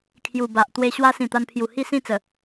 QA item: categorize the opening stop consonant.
aspirated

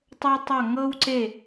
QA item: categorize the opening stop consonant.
plain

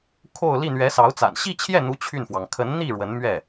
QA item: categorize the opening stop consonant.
aspirated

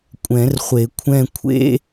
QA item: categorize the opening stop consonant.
ejective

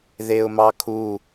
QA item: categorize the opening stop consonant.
aspirated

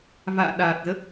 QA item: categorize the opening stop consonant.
implosive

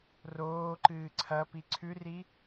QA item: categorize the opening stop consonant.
click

